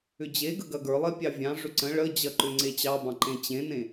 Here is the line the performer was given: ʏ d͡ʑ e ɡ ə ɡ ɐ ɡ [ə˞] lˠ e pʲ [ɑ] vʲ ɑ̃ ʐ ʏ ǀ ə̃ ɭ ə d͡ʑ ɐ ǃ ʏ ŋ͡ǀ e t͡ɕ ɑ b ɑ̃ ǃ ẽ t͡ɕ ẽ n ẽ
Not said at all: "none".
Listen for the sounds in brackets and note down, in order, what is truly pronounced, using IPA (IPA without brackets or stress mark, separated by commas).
ə˞, ɑ